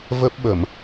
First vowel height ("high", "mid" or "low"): mid